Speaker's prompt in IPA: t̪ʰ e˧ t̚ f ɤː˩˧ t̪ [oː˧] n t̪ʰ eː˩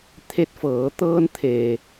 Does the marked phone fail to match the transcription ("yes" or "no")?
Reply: yes